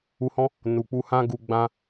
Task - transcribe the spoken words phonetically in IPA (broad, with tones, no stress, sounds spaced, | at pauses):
u˧ h ɔ̃˦ | n u˨ k͡p u˧ h ã˦ ɡ u˧ ɡ͡b ã˦